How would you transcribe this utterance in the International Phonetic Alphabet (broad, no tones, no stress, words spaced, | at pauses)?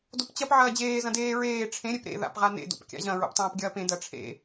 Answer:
dopt͡ɕɐp ʕɐːd͡ʑeː zɐ̃deː ɹeː ʈ͡ʂʰẽ ɾʲepɾḛ ða̰pʁanḛ do̰pkʲa̰ʑɐ̃ ɹo̰ptˤɐ̃ːpɡʲɐːpẽ dɐʈ͡ʂʰḛ